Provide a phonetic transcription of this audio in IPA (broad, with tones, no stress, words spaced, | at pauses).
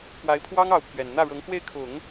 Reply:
kwa˧˥ɪ̯pʰwɑ˥ŋ ɑ˧˥ʊ̯pʰɥɛ˨˩n n̪ä˥˩ɻɤ˧˥ŋxwe˥˩ɪ̯ kʰʊ˨˩˦ŋ